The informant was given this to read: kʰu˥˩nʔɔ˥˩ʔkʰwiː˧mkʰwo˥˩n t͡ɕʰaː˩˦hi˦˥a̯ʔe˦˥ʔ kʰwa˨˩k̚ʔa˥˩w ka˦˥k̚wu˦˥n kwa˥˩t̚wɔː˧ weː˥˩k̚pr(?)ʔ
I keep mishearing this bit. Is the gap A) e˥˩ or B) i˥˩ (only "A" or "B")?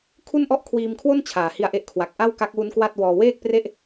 A